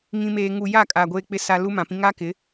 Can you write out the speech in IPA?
ŋĩ˨meː˨ŋu˨ ja˦˨ kʼa˨ ɡʷeː˨k͡pɪ˨ sa˨ lu˦mã˨pĩ˦ ŋa˦kɪ˨˦

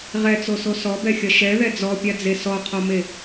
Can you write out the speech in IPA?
ʁɛt͡soso sɔbɛxʲɐ ʃɛðɛ d͡zɔpʲad͡ze sɔqʰɔme

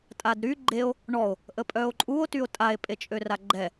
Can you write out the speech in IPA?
tʼadɾy ɡ͡ǃeo̯ | ɳɔo̯ | ʔəpʼœo̯ǃʼuo̯ tyo̯tʼae̯ pʼet͡ʃʼøraɡ͡ǃɛ

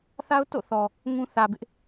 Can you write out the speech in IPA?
θa˦ʊ̯to̰˦˨ θɔ˨ | ŋũ˦ θä˨bɪ˦ʔ

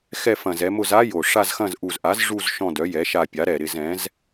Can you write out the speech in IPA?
xɛ˦˨fɐ̃˨˩zɛ˩˧mʊ˦˨z a˦˥jo˨˩ ʂa˦˨zxɐ̃˦˨z ʔu˨˩zʔa˩˥z ʐu˦˨z ʃɔ̃˦˨ dœ˩˥jɛ˩˥ʃa˦˨pʲa˩˥ ɾɛ˨˩ɾɪ˦˨z ɛ̃˩˥z

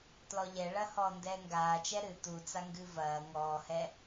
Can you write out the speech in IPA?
tlɔʎɛɭɐ hɔːndɛːŋɡaː t͡ʃɛɾɨ tut͡sa ŋɡɨvɐː ŋɔːhɛ

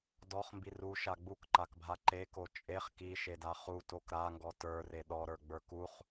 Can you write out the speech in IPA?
dɔχmbi ruʃa ɡ͡bukǃakbʱa ǃeko t͡ʃʼeχ kiʃeda χutok ɾaŋɡɔ tə˞re ɗɔɾə˞ɡ͡bə˞ kuχ

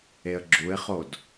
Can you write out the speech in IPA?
eə̯ɡ͡ǁuɪ̯χod

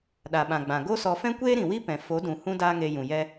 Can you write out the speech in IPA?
ɗa˨ɓã˨ɡ͡bã˨ ɡo˦sɔ˧fɛ̃˦ kʷeː˦ɾĩ˨wi˦pɛ̃˨ fo˨˦dũ˨ hũ˦daː˦ŋe˧ jũ˨jɛ˦

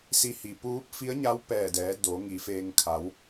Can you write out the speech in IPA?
si˧hi˩ puː˧˥p̚ fi˧˥ə̯ɲa˧˥w pɛː˧˩dɛː˩˧ do˩˧ŋi˩˧feː˧ŋ kʰa˩˧w

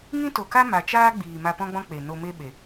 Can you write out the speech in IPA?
ŋĩ˦to˨ka˦ ma˨t͡ʃaː˦ɡ͡biː˨ ma˧pɔ̃˦ɡ͡bɔ̃˦k͡pe˨ no˨me˧ ɓe˨

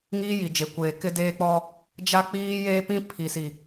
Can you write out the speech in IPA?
ŋiː˦ji˨d͡ʒe˨kʷeː˨ kɪ˦deː˦k͡pɔ˦ | d͡ʒa˦k͡piː˦jeː˦pĩ˦ pʰi˨si˨

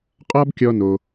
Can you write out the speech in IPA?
qʼɒ˥bkʲɔ˧no˩

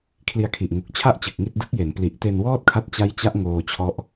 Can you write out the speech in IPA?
kʰli˧a̯kʰi˨˩ʔ ŋu˨˩k̚t͡ɕʰa˥˩ʔ t͡ɕɯ˨˩k̚ŋi˥˩t̚ dɯ˦˥k̚je˩˦n pli˨˩ʔte˧nwɔː˥˩t̚kʰa˦˥t̚ t͡ɕa˦˥jt͡ɕa˦˥ʔ ŋoː˧t͡ɕʰɔ˦˥ʔ

